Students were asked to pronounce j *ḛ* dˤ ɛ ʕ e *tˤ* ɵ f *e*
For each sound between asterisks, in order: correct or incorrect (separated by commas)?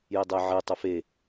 incorrect, correct, correct